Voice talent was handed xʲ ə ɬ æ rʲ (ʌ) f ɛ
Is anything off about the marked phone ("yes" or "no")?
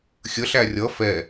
no